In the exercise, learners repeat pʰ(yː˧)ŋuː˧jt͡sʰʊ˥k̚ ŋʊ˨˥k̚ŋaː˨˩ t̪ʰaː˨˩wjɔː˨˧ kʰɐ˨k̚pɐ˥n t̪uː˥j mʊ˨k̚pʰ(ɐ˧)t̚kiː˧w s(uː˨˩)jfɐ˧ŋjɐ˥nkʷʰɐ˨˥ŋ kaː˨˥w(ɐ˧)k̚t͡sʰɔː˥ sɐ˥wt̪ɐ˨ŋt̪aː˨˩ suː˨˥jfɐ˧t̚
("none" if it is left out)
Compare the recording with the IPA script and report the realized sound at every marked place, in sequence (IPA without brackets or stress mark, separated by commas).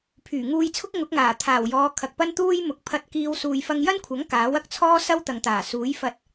yː˨˩, ɐ˧, uː˨, ɐ˧